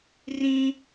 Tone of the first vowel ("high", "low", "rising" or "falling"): high